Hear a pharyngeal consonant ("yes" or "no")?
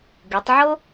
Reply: yes